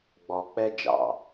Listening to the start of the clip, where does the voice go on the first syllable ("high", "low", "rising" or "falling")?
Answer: low